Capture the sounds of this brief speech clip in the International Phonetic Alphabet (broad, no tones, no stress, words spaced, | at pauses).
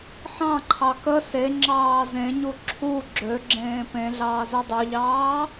ħɑ̃ǃʰɑ kə se ŋ͡ǁɑːzẽɲu ǁʰu ɡ͡ǁøɡ͡ǁẽː pẽ ɮɑːzudˤøʎɑː